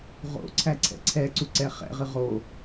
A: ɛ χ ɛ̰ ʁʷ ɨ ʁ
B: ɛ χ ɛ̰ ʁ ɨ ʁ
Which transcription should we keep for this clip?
B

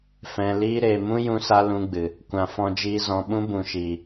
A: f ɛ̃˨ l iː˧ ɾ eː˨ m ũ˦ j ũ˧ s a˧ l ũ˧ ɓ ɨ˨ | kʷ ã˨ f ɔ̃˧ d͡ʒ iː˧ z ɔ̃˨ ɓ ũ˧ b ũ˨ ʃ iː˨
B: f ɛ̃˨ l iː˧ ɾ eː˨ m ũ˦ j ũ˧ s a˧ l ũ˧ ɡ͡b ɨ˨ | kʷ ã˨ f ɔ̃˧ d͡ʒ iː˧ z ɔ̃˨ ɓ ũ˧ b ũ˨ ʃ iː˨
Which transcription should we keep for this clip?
B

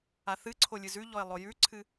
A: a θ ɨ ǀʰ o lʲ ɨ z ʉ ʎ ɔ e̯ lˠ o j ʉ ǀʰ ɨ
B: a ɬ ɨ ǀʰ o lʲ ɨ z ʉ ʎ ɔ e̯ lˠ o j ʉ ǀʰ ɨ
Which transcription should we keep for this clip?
A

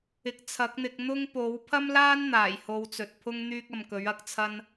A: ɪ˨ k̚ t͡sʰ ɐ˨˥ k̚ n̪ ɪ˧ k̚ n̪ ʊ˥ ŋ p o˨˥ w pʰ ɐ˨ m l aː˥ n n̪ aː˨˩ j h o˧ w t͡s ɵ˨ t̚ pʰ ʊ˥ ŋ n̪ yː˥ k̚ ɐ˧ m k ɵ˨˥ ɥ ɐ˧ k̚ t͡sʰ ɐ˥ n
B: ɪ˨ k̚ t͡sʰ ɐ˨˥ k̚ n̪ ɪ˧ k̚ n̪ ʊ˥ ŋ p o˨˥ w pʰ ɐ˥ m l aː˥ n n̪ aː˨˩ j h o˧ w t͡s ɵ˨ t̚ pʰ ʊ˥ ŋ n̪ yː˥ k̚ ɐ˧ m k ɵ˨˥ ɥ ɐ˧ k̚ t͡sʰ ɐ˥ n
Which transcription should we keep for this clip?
B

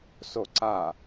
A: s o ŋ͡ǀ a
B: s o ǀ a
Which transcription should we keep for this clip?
B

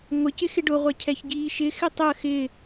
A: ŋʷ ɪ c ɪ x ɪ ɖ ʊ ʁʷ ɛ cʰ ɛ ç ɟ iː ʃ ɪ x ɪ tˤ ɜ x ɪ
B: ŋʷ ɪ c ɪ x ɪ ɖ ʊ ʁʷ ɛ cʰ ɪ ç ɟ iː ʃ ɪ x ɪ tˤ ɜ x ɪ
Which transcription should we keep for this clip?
A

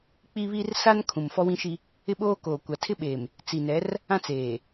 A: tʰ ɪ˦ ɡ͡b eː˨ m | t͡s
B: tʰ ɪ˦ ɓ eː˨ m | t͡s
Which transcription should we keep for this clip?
B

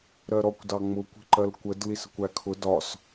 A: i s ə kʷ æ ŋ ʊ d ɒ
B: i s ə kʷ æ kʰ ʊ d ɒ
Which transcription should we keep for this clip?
B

